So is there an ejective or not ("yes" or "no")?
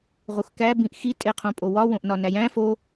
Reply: yes